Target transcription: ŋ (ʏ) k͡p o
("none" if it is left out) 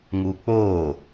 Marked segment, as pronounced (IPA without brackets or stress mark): u